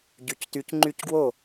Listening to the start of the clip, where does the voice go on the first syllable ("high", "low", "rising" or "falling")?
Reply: low